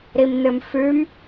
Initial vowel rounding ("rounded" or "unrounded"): unrounded